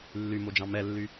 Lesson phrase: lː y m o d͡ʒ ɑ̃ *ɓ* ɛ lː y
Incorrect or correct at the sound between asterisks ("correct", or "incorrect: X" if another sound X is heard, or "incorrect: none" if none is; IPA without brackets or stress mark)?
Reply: incorrect: m